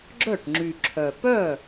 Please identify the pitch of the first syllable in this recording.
falling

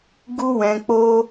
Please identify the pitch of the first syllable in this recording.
high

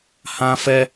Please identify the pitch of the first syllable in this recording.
high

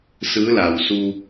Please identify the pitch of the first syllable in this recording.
rising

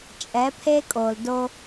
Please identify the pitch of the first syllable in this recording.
rising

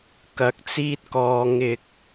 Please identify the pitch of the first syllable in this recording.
rising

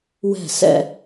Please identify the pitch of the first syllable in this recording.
falling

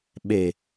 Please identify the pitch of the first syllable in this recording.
low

